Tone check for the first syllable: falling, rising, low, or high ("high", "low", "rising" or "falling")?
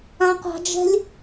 high